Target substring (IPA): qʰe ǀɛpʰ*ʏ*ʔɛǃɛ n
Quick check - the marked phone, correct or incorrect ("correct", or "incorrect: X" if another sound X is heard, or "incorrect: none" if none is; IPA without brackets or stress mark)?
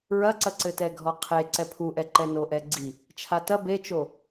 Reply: incorrect: u